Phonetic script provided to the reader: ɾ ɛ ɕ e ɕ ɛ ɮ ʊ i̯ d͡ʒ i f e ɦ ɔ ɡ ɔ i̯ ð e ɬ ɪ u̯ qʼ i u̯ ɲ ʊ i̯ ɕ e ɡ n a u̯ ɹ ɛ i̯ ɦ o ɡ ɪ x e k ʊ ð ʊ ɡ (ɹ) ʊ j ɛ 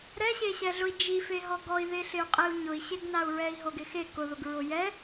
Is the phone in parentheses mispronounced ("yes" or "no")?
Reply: no